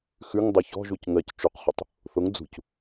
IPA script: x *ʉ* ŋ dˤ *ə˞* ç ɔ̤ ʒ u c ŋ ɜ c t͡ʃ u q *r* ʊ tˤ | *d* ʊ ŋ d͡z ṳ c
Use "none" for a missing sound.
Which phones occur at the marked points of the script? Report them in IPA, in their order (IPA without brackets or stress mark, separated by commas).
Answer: ʉ, ɜ, χ, θ